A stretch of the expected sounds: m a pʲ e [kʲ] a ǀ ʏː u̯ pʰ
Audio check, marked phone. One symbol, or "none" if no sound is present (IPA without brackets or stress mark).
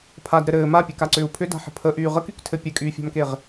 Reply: k